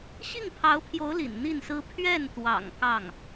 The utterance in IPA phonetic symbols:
ɕ i˥˩ ŋ pʰ ɑ˧˥ ʊ̯ pʰ j o˧˥ ʊ̯ l ḭ˨˩ n n̪ i˥˩ n s ɹ̩˥ pʰ ɥ ɛ˥˩ n t̪ w ɑ̰˨˩ ŋ k ɑ˥˩ ŋ

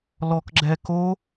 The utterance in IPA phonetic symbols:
l ɔ k ɡ͡ǁ ɛ k o

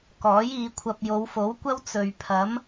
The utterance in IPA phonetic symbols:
k ɔː˨˥ j iː˨˧ kʷʰ ɐ˧ p̚ j o˨˧ w f o˨˥ w kʷ ɐ˥ w t͡s ɵ˨ ɥ pʰ ɐ˨˥ m

